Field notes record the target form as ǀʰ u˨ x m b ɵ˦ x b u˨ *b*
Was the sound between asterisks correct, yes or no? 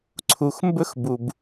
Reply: yes